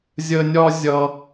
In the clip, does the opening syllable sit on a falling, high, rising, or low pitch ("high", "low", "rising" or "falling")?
high